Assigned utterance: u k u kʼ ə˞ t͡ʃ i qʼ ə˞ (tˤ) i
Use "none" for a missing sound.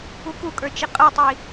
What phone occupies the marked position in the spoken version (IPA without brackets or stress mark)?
tˤ